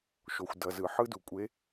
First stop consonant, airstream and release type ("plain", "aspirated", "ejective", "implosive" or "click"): plain